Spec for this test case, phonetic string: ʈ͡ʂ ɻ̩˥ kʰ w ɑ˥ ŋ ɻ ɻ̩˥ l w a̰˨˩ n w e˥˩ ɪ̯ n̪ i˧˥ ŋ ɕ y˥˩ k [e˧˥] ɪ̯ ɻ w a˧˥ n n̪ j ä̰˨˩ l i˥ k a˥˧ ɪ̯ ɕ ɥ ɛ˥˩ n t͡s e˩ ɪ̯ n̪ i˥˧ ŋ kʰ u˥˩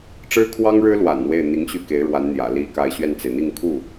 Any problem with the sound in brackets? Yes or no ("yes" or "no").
no